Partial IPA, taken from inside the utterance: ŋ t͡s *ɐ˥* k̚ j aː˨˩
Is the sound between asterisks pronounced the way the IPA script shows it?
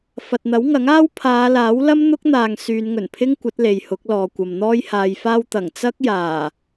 yes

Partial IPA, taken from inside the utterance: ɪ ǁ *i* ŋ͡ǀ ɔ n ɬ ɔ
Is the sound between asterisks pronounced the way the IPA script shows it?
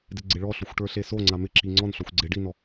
yes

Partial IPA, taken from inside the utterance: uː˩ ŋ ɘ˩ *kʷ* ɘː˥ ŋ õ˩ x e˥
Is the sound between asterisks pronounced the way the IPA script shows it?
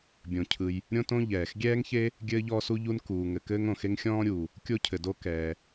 no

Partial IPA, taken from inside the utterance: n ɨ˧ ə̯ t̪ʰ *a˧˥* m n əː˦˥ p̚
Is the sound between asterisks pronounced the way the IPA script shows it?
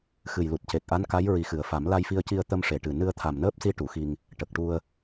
no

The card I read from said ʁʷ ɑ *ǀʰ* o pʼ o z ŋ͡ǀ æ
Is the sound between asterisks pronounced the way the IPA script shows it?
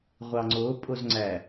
no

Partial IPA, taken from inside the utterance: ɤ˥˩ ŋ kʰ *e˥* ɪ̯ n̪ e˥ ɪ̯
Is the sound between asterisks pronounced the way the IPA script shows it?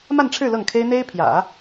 yes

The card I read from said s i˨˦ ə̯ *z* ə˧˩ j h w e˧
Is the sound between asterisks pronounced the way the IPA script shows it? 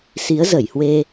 yes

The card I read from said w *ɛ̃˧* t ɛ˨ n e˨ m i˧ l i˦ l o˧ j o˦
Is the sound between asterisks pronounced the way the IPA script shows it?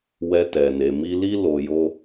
no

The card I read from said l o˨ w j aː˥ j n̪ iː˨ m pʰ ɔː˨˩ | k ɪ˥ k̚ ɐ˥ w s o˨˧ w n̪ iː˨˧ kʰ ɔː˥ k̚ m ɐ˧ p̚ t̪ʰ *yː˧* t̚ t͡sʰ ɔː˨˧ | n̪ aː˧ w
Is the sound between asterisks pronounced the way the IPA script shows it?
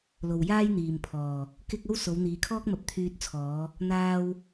yes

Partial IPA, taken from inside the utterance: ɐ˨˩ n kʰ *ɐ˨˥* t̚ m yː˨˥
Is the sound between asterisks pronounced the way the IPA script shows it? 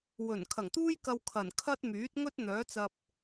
no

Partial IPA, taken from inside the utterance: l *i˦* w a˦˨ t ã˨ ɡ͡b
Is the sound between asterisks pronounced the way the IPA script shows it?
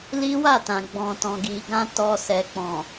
yes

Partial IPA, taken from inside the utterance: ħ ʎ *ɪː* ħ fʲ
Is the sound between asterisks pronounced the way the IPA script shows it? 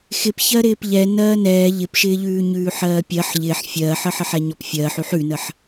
yes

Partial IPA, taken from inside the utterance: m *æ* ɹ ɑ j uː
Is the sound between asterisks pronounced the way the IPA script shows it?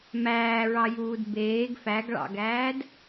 no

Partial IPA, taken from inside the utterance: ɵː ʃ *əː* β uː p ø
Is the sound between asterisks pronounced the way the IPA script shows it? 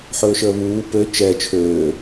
yes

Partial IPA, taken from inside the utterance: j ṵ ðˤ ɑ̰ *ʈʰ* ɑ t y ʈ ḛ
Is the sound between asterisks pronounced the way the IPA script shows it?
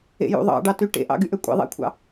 no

